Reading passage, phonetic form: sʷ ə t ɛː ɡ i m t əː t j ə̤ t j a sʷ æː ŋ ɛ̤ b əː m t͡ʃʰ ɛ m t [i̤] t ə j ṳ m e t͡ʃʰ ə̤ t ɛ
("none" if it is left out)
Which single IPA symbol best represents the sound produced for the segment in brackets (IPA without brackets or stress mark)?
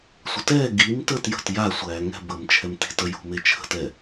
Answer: i̤